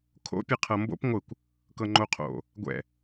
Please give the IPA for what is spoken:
kʰ o̰ pʲ ɛ qʰ ɤ m b o̰ p ŋʷ ɯ kʷ | k ɤ ŋ͡ǃ o qʰ o̰ | ɡʷ ɛ̰

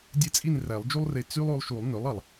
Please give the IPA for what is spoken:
dʲ e˥ t͡sʼ i˥˧ n r æ˨˩˦ lˠ d͡ʒ u˥ lˠ r e˧ t͡s y˥ lˠ o˧ lˠ ʃ u˨˩˦ lˠ n ø˩˥ lˠ ɑ˩ lˠ

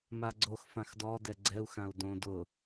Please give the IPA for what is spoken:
m a ɡ͡ǀ o x f ã x d ɔ d ɛ ɡ͡ǀ ɛ u̯ x ã u̯ d õ d ʊ

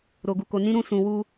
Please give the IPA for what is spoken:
ɾ o˨ ɡ u˨ k o˨ n ĩ˧ ɾ ũ˧ s ũ˨ w u˧

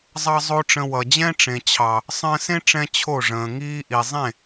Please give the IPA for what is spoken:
zˤ ɑ˧ zˤ o˦ ʈ͡ʂ ə̃˧ w ʌ˨ d͡ʑ ɛ̃˦ ʈ͡ʂ ẽ˨ t͡ɕʰ ɑ˨ | sˤ ə̃ː˧ s ẽ˦ ʈ͡ʂ ɛ̃˧ t͡ɕʰ o˦˨ ʐ ə̃ː˨ ŋ iː˦ ʔ i˨ zˤ ẽ˦˨

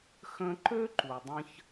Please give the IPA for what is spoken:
x ə̃˦ ǃ ø˦ ǃ u˨ dˤ ə̃˧ ç

